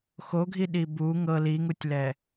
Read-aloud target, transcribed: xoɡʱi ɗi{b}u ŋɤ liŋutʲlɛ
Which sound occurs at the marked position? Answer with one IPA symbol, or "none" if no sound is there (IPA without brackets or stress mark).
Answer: b